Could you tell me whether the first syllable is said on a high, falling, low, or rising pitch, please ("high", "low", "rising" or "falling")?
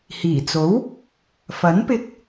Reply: low